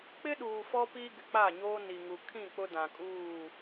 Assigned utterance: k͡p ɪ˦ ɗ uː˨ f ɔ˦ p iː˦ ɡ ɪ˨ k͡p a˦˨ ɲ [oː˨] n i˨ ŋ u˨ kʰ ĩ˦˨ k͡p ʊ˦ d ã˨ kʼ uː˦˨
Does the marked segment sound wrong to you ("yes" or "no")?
yes